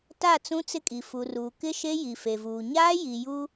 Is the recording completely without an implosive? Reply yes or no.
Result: yes